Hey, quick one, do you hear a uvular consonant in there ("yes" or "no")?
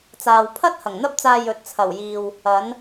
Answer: no